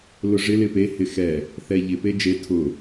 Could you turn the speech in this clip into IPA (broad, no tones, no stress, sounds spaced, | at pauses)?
l ʊ ʐ ɪ l ɪ p e h ɪ x ɛ | θ ɛ ʎ ɪ p e d͡ʒ e tʰ ʊ